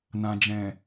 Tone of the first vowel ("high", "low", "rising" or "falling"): low